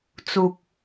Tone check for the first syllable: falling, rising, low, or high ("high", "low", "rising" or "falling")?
low